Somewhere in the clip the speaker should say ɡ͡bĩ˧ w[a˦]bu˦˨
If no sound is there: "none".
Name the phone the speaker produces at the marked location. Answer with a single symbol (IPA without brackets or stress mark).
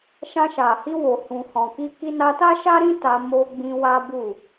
a˦